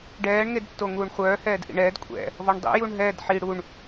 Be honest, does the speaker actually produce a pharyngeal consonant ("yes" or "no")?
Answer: yes